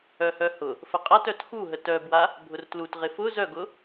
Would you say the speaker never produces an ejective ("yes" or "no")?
no